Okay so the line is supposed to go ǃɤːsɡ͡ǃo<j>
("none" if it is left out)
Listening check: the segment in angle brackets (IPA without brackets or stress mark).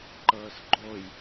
j